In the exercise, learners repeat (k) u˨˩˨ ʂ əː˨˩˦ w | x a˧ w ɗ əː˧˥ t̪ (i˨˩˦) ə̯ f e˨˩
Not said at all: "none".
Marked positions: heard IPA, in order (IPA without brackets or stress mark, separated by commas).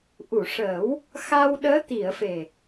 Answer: ʔ, i˨˩˨